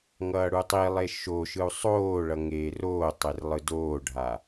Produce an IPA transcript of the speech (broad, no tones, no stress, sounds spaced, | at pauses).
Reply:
ŋ ʌː ɽ u tˤ i lˠ e ʃ o ʃ ɯ u̯ sˤ oː ɭ ʌ ŋ eː r oː tˤ e r lˠ ɯ d oː ɖʱ a